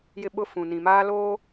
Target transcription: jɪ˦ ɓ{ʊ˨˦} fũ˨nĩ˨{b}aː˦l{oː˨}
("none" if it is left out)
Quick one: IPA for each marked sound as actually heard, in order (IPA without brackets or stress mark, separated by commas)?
ʊ˦, m, oː˦